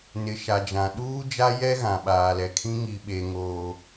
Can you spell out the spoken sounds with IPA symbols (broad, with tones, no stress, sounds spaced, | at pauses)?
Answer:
n ɪ˨ ʃ a˨ d͡ʒ ã˨ ɗ uː˦ d͡ʒ a˦ j ɛ˦ ɣ ã˨ ɓ aː˨ l ɛ˨ kʰ ĩ˦ ŋ i˦ ɓ e˦ ŋ oː˦